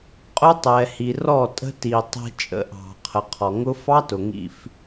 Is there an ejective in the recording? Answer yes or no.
yes